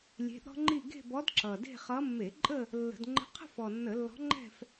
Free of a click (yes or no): no